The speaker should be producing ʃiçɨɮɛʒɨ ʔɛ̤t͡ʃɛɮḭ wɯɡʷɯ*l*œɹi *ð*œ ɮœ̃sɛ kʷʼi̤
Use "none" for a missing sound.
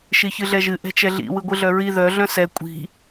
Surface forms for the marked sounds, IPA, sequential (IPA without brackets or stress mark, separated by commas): ɮ, ð